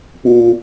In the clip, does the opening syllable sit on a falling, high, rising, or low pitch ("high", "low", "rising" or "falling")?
high